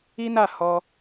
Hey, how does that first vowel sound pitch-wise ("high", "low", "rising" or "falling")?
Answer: high